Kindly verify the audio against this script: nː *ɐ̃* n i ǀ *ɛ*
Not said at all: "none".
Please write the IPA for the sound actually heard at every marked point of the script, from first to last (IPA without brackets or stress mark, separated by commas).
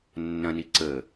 ɐ̃, ə